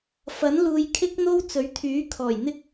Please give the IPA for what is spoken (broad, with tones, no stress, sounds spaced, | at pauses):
f ɐ˨˥ n l uː˨˧ j kʰ ɪ˥ k̚ n̪ o˥ w t͡s ɵ˨˥ ɥ t̪ʰ yː˨˥ kʰ ɔː˨˩ j n̪ ɪ˥ k̚